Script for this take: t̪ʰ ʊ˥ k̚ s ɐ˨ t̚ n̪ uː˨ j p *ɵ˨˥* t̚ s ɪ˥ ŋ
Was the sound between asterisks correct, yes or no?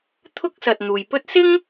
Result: no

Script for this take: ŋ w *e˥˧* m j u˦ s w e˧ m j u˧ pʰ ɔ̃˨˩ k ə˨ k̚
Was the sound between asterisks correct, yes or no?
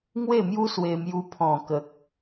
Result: yes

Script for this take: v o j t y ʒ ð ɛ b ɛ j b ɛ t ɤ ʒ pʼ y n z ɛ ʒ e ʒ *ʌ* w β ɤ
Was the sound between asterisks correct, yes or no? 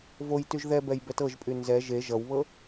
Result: yes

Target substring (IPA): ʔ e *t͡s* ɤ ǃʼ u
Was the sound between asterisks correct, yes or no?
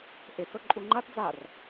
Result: yes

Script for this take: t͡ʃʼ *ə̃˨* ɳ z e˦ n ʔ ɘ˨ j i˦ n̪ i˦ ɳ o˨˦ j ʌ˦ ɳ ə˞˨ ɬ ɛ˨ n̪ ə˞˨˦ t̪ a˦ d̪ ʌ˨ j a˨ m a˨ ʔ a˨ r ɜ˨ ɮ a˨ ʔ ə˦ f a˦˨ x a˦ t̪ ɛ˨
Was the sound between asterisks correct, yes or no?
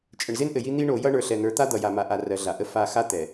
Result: no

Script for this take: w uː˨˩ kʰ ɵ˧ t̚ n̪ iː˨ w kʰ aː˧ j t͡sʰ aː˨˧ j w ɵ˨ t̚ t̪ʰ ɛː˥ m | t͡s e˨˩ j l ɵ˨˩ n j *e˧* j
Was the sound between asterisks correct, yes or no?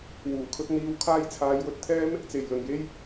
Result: yes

